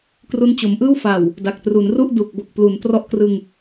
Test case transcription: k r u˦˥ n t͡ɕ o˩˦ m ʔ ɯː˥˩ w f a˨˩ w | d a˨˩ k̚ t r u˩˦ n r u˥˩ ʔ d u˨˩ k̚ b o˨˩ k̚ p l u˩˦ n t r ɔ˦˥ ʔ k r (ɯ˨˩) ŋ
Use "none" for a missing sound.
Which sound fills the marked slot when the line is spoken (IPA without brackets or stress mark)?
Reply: ɯ˧